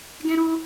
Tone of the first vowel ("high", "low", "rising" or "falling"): high